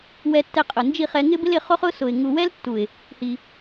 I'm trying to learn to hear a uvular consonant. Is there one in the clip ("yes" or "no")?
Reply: yes